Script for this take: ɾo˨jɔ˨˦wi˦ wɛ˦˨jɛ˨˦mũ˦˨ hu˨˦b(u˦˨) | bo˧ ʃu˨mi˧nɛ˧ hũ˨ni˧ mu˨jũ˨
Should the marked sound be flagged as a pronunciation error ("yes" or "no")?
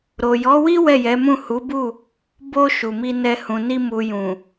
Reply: no